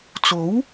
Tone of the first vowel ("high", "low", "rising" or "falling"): rising